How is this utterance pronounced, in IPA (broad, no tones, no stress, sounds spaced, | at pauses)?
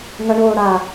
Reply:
ŋ ɐ ɳ oː ɽ a